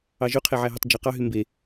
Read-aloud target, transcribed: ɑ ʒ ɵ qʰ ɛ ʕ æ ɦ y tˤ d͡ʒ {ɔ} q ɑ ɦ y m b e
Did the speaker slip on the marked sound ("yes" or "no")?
yes